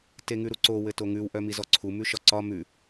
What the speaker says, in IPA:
teŋʉɾuǀo wɘtoŋʉw ʔœmizɔǀʰu mʉʃɒǀɒ mʉ

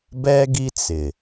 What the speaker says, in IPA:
bɛ˦ɡi˦ t͡sɪ˨

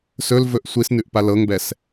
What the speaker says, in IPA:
sɵlvɵʔ sʷisnʉʔpa lɤŋbɛs

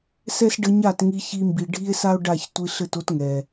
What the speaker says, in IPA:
sɛ˦s ɖɘ˧ɲa˦˨t ŋi˧çi˧mbi˨ ɖʱi˦e̯sa˦o̯ɖa˦˨ç tʷi˧ɬɘ˦˨to˦tŋɛ˨

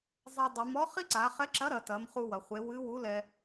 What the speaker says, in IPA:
zˤɛ˧dˤe˩˧m ɔ˧˥ χi˥ǀa˩˧χɛ˧˥ǁɐ˧˥ ɾɐ˩˧tɐ˩˧m χu˧wɐ˩χʷe˩˧ wɨ˧˥wu˧˥lɛ˧

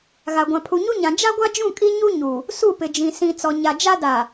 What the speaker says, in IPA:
ɣa˨ɡʷã˨ pʰu˨ɲu˦ɲã˨ d͡ʒa˦ ɡʷa˦d͡ʒũ˦˨ kʼi˦ɲu˦ɲu˨ | su˦˨pɪ˨d͡ʒĩ˨ sĩ˨ t͡sɔ˨ɲa˨d͡ʒa˦ da˨

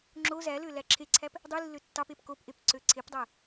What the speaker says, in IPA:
ŋ͡ǁo zælø læǁʰeǀʰæp | dˤilːø tːɑpep kopʔep ǀøǀʰepdˤæ

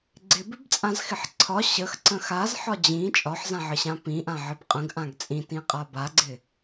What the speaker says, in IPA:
ɡ͡ǀɪbɪbt͡sʼãzxɪħ ǀʰɒ ɕəxǀə̃ xazħɒ d͡ʑĩ t͡ʃʼɒħzãʕəɕã pĩʔãʕəb qʼə̃ɡʔãɡ t͡sʼĩtĩqʼa baɡ͡ǀɪ

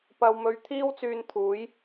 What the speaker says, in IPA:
pɐ˧wmɵ˧ɥ t̪ʰiː˥wt͡syː˧n t̪ʰuː˨˥j

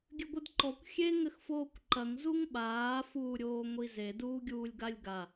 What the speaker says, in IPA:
ɡʲɘɡʷɨdǃɔkʷ xʲe ŋɘxfoːkʷǃɐŋ zuŋɓaː fuːɾʲoːŋʷize duːɡʲuːlʲɡalʲɡa

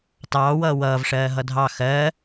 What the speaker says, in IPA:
tɑːwʌː wʌːvʂɜː ɦʌdʱɑ xɜ

